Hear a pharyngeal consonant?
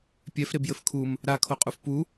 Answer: no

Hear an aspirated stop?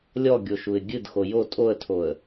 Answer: yes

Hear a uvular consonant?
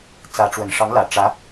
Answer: no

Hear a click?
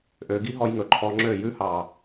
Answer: yes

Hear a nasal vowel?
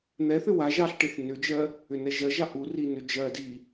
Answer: no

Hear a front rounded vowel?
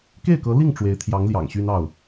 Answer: yes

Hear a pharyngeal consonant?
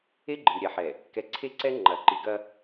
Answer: yes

